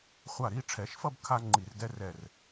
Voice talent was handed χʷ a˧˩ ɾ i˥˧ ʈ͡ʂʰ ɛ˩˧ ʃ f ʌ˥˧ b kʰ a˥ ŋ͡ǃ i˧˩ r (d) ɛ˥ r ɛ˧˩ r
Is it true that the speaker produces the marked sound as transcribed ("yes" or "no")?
yes